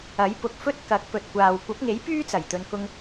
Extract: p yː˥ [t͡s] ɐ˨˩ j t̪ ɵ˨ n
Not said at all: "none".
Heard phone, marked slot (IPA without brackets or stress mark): t͡s